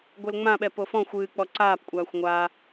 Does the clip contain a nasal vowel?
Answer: yes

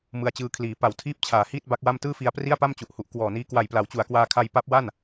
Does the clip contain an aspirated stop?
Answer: yes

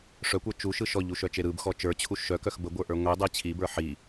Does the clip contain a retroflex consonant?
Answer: yes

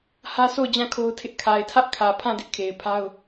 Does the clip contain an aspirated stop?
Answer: yes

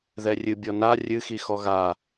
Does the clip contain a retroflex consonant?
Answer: no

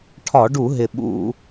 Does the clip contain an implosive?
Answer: yes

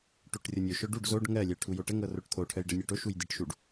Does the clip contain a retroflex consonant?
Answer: yes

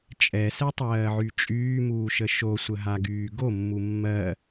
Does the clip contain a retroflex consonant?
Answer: no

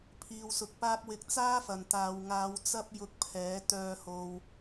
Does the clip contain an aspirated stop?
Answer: yes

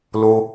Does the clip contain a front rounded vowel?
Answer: no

